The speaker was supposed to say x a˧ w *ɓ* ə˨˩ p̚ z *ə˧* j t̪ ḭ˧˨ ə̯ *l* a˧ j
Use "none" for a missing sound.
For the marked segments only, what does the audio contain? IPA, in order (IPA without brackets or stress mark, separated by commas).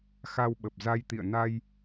ɓ, a˧, n